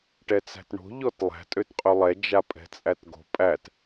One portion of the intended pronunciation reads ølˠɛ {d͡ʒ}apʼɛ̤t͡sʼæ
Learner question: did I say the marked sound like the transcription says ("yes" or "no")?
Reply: yes